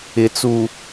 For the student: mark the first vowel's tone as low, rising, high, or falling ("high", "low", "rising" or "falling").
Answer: low